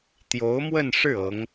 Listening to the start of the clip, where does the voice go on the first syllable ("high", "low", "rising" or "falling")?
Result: rising